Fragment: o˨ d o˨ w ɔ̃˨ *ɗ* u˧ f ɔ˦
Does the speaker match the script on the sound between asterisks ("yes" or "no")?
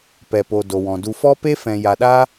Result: no